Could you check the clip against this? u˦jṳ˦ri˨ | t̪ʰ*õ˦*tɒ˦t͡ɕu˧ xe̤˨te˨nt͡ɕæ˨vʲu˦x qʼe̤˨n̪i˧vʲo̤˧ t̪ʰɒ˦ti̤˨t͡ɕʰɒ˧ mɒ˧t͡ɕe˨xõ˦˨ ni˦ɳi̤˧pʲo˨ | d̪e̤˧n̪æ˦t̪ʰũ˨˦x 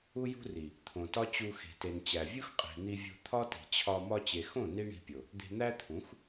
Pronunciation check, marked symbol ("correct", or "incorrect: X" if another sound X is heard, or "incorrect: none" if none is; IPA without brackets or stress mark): incorrect: õ˨